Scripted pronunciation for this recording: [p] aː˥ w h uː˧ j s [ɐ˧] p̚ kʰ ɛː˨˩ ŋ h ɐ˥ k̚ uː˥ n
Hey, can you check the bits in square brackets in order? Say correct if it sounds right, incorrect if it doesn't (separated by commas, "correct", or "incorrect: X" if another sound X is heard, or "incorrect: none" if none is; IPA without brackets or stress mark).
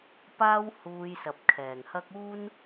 correct, incorrect: ɐ˨